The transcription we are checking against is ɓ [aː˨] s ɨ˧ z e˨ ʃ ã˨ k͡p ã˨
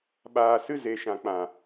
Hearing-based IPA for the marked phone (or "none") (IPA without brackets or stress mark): aː˨